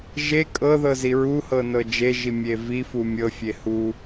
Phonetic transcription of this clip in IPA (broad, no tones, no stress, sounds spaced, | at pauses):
ʒ e kʼ ɤ ð ɤ z i ɹ u h ɤ n ɤ d͡ʒ e ʒ i mʲ e v i f u mʲ ɤ fʲ e h u